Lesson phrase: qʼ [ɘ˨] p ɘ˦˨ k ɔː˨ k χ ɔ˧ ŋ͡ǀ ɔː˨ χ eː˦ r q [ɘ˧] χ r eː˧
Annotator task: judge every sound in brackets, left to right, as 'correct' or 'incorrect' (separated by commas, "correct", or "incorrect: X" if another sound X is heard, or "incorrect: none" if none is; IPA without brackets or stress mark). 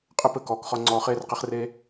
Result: incorrect: ɘ˦, incorrect: e˧